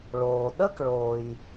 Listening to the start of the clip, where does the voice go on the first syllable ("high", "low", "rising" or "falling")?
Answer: low